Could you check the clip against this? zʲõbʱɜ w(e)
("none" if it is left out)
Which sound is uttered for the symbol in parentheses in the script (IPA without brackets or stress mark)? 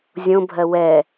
ɛ